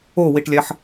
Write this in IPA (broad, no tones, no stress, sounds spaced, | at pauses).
o w i ʈ lʲ æ ħ